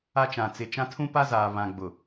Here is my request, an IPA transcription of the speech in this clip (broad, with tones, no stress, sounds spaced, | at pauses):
a˦ t͡ʃ ã˨ t͡s ɪ˨ t͡ʃ ã˦ tʰ ũ˦ p a˦ z aː˨ β ã˨ ɡ͡b ʊ˨